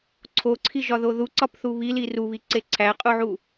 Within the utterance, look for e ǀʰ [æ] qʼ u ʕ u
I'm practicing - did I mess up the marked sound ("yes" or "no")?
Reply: no